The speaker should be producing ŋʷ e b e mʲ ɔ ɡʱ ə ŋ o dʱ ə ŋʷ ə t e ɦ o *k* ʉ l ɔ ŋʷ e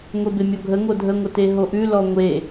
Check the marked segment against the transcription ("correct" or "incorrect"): incorrect